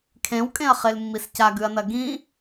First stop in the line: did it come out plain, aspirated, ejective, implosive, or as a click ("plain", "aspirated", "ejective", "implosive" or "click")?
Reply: aspirated